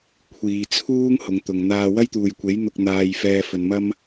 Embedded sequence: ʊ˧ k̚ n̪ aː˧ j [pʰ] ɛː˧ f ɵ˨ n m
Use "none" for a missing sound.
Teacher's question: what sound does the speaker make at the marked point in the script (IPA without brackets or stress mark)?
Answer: f